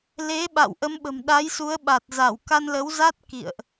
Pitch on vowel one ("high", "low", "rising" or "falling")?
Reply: rising